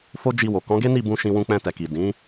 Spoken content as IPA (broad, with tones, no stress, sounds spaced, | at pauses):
f o˦ d͡ʒ i˧ w o˨ k ɔ̃˨˦ ɡ e˦ n i˦˨ b ũ˧ ʃ ĩ˧ w ũ˧ k͡p ɛ̃˧ t ɛ˨ k i˨ d ĩ˨˦